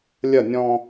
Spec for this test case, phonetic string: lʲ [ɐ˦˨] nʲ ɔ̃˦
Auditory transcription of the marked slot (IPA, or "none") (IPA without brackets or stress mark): ɐ˦˨